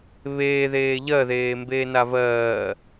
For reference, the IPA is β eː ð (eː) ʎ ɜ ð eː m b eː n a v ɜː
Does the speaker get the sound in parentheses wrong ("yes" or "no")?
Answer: no